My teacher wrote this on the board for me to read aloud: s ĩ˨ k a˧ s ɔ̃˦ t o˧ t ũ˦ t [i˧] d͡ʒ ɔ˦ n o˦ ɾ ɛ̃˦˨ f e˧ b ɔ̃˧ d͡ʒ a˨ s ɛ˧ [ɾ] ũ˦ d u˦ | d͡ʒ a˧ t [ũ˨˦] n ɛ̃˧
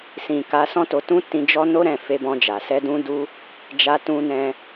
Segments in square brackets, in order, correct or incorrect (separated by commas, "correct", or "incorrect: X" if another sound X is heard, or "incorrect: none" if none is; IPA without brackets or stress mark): incorrect: ĩ˧, incorrect: d, incorrect: ũ˧